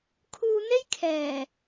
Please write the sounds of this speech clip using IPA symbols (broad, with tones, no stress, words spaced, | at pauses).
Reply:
kʰuː˧n̪e˥jkʰɛː˨˩